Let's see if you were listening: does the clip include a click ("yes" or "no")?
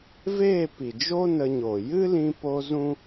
no